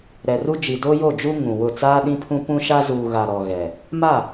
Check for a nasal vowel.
present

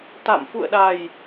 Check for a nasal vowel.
absent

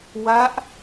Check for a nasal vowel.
absent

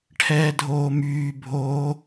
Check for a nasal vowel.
absent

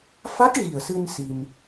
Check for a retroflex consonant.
absent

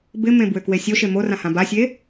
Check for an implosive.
absent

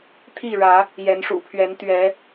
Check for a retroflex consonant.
present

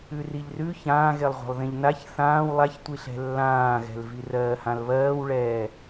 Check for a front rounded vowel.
absent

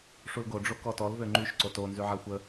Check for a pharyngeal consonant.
present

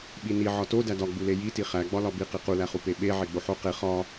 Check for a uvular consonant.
present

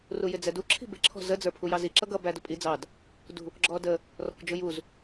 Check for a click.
present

